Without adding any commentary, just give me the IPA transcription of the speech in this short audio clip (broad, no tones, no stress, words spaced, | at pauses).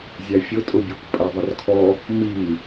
zʲæfʲʊ tʼʊbʲukʷ pʼæðˤərkʰɔ | mi